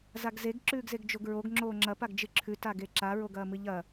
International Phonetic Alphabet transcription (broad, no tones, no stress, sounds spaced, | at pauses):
z a ɡ z e ɡ ǁ ʉː ɡ z e ɡ d͡ʒ o ɡ ɹ o ɡ ŋ͡ǁ oː ŋ͡ǁ ɐ p a ɡ d͡ʒ ɨ ǁʰ ʉ t a ɡ e ǁ a ɹ o ɡ ɐː m ɨ ʎ ɐ